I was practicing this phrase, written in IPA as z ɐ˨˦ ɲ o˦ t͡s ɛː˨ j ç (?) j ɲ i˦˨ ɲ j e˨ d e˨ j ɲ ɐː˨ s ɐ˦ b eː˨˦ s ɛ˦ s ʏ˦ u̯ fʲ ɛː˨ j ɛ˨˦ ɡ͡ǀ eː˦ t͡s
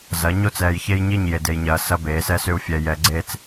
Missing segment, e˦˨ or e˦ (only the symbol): e˦